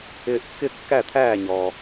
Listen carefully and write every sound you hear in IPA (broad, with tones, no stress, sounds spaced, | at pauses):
ɪː˧ ʔ kː ɪ˥˨ kː æ˥˨ t̪ʰ æː˥˨ ɲ ɔ˩